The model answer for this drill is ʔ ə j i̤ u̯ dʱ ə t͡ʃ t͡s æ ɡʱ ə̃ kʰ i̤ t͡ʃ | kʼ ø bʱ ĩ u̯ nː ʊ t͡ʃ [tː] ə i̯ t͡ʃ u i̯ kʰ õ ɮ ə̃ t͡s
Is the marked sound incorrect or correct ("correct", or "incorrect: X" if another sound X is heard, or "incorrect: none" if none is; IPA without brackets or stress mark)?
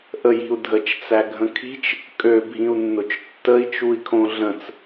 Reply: correct